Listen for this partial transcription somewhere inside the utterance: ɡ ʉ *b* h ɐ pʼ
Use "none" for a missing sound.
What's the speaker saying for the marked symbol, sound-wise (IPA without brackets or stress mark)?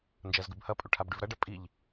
b